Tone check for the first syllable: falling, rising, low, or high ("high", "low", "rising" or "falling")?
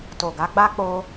low